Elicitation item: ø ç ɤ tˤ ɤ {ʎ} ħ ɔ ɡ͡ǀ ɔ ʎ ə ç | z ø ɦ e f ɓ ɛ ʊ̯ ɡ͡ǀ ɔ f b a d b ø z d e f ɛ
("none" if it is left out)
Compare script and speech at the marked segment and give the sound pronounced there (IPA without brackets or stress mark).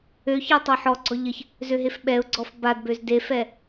none